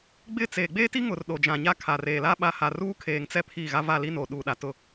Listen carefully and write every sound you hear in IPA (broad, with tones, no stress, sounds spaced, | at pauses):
ɡ͡b ɪ˦˨ t͡s eː˨ ɡ͡b eː˦ t i˦ ŋ ʊ˨ r ɗ o˨ d͡ʒ ã˨ ɲ a˦ kʰ a˨ r eː˨ l a˦ ɓ a˦ h a˨ r uː˦ kʰ eː˨ ŋ t͡s ɛ˦ pʰ iː˦˨ ɣ a˦ v a˦˨ l i˦ n oː˨ ɗ uː˨ ɗ a˨ t ʊ˦